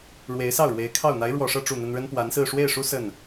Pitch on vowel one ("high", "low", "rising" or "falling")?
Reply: rising